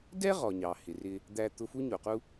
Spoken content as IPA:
d ɛ˥ ʁ ɔ˩ ɲ ɑ˩ h ɪ˩ r ɪ˧ | d̪ æ˧ t̪ ʊ˧ f u˥ ɲ u˩ q u˥

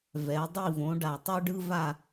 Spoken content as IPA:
v ɛ˩˧ dˤ i˦˨ v õ˩˧ ɖ a˩ tˤ u˦ ɖ ɯ˦ v a˦˨

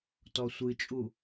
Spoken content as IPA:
t ɔ sʷ ɨ t͡ʃʼ u

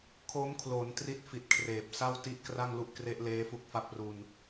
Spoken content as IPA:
kʰ o˦˥ m kʰ l o˩˦ n t r i˦˥ t̚ f i˨˩ t̚ kʰ r eː˨˩ p̚ s a˥˩ w t i˦˥ ʔ k r a˥˩ ŋ l u˦˥ ʔ k r e˦˥ ʔ l eː˦˥ f u˦˥ k̚ f a˦˥ p̚ r u˧ n

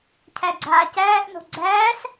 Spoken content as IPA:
cʰ æ ɡ͡ǀ aː c æː ʔ n o̤ ɡ͡ǀ æː s

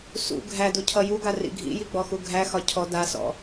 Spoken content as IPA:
s ṵ ɡʱ æ d u cʰ ʌ j u ɡ a r ḭ ɡʱ ḭ j i ɡ͡b ɔ x u ɡʱ æ x ɒ cʰ ɔ d a s ɔ̰

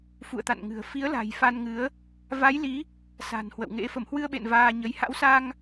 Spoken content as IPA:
f ṵ˧˨ ə̯ t̪ a̰˧˨ n ŋ ɨ̤˨˩ ə̯ f i˨˦ ə̯ l a̤˨˩ j f a˧ n ŋ ɨ˨˦ ə̯ | v a˨˦ j l i˨˦ | s a̤˨˩ n h w ə̰˧˨ w ŋ ḛ˧˥ f ə˧˩ m h w ɨ˧ ə̯ ɓ ḛ˧˨ n v aː˧ ɲ ə˨˦ j h a̰˧˥ w s a˧ ŋ

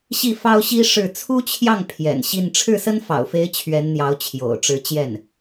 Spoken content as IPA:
ɕ i˥˩ f ɑ˥ ʊ̯ ɕ i˥ ʂ ɻ̩˥˩ t͡sʰ u˥ t͡ɕʰ j ɑ˥˩ ŋ pʰ j ɛ̰˨˩ n ɕ i˥˧ n ʈ͡ʂʰ ɻ̩˥˩ s ə˥ n f ɑ̰˨˩ ʊ̯ f e˧˥ ɪ̯ t͡ɕʰ ɥ ɛ˧˥ n n̪ j ɑ˧˥ ʊ̯ t͡ɕʰ j o̰˨˩ ʊ̯ ʈ͡ʂ ɻ̩˧˥ t͡ɕ j ɛ˥˩ n

